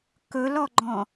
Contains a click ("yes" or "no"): yes